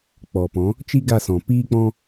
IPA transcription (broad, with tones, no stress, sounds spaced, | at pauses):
k͡p ɔ˨ p ɔ̃˨˦ | t͡ʃ i˦ ɡ a˦˨ s ɔ̃˨ p iː˦ k͡p ɔ̃˦